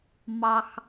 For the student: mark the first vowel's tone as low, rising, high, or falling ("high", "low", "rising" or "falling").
high